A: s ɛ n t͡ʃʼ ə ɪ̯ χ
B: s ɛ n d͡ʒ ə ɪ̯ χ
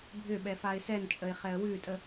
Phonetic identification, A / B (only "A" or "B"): A